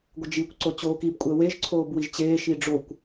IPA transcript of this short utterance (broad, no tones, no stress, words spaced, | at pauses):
ɡʷəd͡ʒikʷ ǀot͡ɕoːkib kʷʼəːweʒ ǀʰoːbwiʒt͡ɕeː ʃiɖ͡ʐokʷ